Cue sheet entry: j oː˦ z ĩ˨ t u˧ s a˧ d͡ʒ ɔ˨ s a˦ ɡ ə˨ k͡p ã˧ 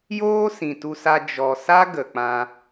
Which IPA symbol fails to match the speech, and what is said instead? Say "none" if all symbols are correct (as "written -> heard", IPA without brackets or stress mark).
z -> s